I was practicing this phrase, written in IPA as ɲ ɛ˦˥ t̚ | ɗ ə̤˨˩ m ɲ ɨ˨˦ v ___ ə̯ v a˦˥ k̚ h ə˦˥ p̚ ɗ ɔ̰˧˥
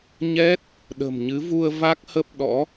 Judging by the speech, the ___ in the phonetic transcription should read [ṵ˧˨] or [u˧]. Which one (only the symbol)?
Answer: u˧